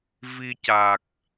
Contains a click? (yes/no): no